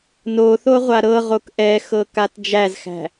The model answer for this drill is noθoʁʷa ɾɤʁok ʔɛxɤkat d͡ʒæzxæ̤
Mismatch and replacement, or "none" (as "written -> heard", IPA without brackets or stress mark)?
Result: none